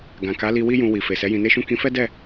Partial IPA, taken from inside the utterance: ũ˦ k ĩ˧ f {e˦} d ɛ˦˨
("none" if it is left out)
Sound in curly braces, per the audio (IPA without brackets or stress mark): ɛ˦